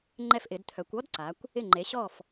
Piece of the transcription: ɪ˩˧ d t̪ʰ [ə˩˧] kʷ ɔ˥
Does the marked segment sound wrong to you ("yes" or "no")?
yes